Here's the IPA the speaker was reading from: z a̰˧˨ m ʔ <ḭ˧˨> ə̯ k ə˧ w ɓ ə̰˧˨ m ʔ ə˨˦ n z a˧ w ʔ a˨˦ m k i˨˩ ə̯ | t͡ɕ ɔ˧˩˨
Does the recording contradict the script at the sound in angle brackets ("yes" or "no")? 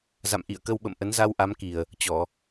no